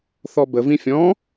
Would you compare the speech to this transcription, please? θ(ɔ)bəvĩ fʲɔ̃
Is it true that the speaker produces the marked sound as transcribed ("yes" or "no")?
yes